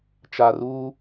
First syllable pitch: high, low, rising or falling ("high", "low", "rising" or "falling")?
low